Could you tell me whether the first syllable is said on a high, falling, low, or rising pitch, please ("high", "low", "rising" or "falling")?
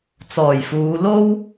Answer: low